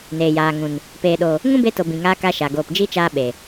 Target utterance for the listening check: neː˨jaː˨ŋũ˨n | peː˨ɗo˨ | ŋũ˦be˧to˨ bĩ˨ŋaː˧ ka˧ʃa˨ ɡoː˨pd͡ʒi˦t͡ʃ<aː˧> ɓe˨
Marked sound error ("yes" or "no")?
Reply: no